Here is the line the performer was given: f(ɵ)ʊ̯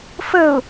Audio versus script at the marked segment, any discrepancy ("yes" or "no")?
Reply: yes